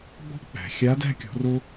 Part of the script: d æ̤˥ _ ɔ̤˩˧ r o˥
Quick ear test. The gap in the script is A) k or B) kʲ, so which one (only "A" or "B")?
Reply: B